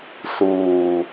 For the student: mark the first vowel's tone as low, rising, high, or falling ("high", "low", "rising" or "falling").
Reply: low